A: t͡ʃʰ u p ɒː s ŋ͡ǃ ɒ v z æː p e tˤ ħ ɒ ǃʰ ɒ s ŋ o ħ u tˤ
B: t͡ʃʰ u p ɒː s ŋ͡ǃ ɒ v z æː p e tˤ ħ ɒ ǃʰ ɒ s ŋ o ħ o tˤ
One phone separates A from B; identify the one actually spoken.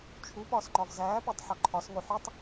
A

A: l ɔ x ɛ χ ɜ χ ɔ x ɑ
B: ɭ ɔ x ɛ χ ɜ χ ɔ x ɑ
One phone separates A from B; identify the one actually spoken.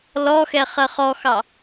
A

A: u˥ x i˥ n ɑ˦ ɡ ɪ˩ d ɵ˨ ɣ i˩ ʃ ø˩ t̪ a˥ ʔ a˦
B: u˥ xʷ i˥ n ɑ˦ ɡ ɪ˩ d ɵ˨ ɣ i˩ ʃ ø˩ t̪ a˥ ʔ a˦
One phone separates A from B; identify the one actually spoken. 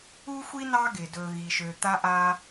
B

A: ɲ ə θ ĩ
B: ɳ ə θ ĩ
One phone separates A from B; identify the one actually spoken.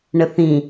B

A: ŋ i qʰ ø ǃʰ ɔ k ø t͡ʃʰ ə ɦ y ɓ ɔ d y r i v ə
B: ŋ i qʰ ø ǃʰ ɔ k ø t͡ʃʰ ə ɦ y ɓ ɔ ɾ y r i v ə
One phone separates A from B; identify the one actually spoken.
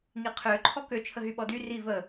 A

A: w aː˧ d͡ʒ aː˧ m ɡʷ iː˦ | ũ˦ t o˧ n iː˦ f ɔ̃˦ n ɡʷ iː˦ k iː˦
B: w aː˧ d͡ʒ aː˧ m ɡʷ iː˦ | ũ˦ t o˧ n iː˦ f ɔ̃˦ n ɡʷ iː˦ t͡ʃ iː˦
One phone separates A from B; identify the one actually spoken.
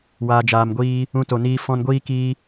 A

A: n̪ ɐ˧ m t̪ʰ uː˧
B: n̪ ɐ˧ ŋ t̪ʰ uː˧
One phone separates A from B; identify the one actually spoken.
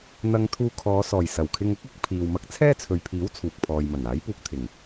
B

